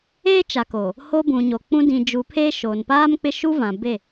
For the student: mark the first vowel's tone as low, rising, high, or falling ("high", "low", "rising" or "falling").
high